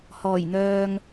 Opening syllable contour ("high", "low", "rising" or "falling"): low